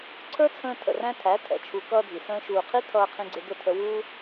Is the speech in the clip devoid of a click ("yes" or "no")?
no